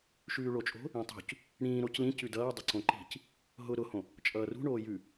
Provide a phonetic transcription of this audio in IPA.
ʃʉːɭot͡ʃʼo̤ | ĩtˤṳc | ɽĩːɾoc lĩcʉ dʌːdˤʊǀõ ǃi̤c | ɦʊ ɾʊhõ | t͡ʃʼʌːrṳ ɳoːjʉ

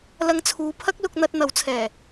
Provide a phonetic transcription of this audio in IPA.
lɐ˧ŋt͡sʰuː˨˧ pʰɐ˥k̚lʊ˧k̚n̪ɐ˧t̚ n̪ɐ˨˥wt͡sʰɛː˨˩

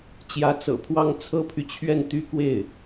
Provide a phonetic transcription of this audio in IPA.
t͡ɕjä˧˥t͡sɤ̰˨˩pʰwɑ˥ŋ t͡sʰɤ˥pʰy˨t͡ɕʰɥɛ˥˩n t̪y˥kwe˥˩ɪ̯

